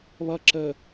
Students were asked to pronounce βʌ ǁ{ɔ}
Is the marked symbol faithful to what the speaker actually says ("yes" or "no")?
no